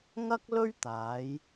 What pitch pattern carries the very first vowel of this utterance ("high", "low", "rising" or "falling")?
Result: high